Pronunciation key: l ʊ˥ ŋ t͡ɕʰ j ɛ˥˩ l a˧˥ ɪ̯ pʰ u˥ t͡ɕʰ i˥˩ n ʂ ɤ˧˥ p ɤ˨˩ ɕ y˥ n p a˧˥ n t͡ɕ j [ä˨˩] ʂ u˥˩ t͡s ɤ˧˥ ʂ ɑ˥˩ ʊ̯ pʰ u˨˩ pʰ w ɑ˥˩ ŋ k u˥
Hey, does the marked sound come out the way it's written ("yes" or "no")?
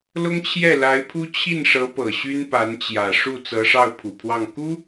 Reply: yes